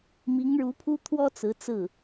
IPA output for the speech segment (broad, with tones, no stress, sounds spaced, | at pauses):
m i˧˥ ŋ ɻ u˧˥ pʰ u˥ t̪ʰ w ɔ˥ t͡s ɹ̩˧˥ t͡s ɹ̩˥˩